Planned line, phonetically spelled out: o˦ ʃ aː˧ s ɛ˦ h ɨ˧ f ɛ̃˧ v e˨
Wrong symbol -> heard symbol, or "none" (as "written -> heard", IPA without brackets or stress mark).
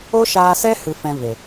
none